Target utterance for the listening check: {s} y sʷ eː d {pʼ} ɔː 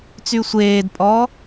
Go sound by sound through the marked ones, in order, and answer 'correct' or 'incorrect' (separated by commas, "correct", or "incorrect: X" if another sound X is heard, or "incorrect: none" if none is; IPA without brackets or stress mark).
incorrect: t͡s, correct